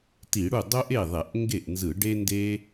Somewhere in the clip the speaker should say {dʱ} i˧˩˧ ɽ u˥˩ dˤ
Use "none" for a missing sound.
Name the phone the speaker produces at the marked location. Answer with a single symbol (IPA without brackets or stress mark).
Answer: t